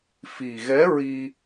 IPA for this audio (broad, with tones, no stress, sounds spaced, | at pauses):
f i˨˩ ɣ ɛ˧˥ ɹ i˧